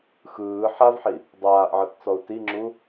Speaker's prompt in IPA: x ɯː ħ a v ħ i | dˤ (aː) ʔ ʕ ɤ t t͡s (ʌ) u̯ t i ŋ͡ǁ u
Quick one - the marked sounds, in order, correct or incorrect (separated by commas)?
correct, incorrect